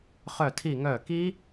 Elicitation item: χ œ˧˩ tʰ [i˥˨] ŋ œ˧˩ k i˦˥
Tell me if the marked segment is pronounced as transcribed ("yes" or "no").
no